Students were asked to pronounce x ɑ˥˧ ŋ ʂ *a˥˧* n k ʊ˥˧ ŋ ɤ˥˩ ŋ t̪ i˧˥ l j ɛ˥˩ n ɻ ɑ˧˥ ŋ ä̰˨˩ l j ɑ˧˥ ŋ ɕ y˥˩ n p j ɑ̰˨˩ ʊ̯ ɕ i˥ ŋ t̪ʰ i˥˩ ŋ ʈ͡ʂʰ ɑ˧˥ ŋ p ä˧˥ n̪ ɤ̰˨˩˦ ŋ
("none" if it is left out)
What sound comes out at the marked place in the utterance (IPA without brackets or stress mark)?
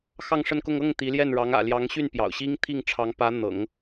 ə˥˧